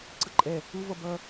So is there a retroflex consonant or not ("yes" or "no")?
no